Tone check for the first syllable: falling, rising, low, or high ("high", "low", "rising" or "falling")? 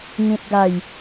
low